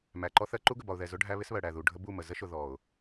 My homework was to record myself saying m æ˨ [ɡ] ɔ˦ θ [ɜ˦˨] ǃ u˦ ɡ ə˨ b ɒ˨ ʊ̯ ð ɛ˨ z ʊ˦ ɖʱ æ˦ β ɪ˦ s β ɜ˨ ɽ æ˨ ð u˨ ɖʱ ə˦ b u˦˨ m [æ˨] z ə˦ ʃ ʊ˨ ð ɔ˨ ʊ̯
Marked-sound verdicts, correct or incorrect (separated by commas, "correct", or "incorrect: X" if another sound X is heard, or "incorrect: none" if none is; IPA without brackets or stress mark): incorrect: ǃ, incorrect: ɜ˦, incorrect: ə˨